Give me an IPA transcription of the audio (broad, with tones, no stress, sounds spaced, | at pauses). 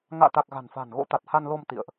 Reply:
ŋ a̰ː˧˨ t̪ a˨˩ k̚ ɣ a̤˨˩ n f a̤ː˨˩ n ɣ o̰˧˥ t̪ a˨˩ t̚ h a˧ n l o˧ m t̪ ḭ˧˨ ə̯ ʔ